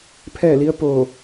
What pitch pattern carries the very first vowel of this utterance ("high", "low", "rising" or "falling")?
falling